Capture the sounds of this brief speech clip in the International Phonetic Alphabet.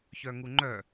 ç œ ŋ u ŋ͡ǃ œ

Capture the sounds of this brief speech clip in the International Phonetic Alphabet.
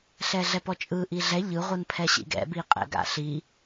ɬ ɛ ɮ ɛ p ɔ t͡ʃʼ ɯ ʔ i ɮ ɛ ʎ ɯ ʁʷ ɯ n pʰ ɛ ɕ ḭ ɡ ɛ̰ b i qʼ ɛ̰ ɡ a̰ ɬ i

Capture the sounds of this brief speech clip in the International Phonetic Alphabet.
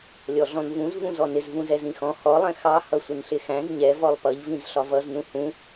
lʲ ɔ ɮ ɔ̃ n v ũ z v ũ z ɔ n ɪ z v ũ z ɛ z ĩ x ɔ̃ h ɔ lˠ ɛ̃ x ɑ h ʌ sʷ ɪ n ɬ ɪ x æ̃ z ɲ ɛ v ɔ lˠ p ʌ ʎ v ĩ z ɬ ɒ v ʌ z n ũ h ũ

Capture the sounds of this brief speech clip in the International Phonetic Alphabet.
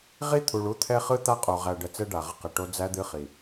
ʁ i˦ t̪ʰ u˨ ɭ u˦ t̪ʰ ɛ˦ χ ɯ˦ t̪ a˦ qʼ o˨ ʁ æ˨ ɖ ə˨ t͡s ɛ˦ ɖ a˨ ʁ ə˦ q ə˨ ʈ o˦ d͡z æ˦ d̪ ɨ˦ χ i˨

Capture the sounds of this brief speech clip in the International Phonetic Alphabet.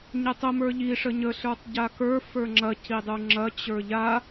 ɲ ɛ tˤ ə m ə˞ ʎ i ʂ ə ɲ ə ɬ ə˞ tˤ ɟ a k ə˞ f ə˞ ŋ͡ǁ ɐ c i dˤ u ŋ͡ǁ ɐ t͡ɕ ə˞ ʎ a

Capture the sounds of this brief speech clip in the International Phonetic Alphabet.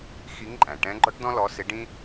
x i˧˥ ŋ ǃʼ æ̃˩ ʈ ɛ̃˧˥ ɡ͡ǃ ɔ˥ ʈ d ɔ̃˥ l ɔ˧˥ s ɪ˧˥ ɖ ĩ˥

